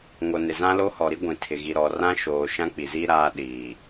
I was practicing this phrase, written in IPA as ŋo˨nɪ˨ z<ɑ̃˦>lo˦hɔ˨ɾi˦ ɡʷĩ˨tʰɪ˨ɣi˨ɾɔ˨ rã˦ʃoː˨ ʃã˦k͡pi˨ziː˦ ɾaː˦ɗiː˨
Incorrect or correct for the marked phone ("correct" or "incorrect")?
incorrect